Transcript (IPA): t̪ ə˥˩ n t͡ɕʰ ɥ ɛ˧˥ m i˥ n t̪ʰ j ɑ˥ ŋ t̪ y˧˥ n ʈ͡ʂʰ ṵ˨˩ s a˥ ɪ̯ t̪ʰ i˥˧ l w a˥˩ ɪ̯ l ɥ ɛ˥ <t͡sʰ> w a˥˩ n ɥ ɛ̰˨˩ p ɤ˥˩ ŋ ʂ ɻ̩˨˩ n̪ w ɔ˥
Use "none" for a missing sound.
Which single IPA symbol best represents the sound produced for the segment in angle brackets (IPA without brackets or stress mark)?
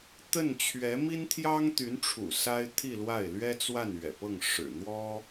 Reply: t͡s